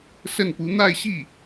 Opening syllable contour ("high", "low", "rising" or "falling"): falling